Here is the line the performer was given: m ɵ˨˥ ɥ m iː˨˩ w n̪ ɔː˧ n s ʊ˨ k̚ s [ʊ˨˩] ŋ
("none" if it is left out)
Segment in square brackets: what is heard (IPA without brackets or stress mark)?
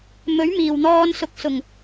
ʊ˨˩